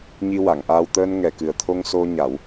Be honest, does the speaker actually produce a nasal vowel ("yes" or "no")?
no